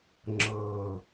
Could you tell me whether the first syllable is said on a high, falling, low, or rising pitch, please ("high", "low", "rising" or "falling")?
low